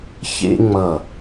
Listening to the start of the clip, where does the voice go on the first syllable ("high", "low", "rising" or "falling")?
high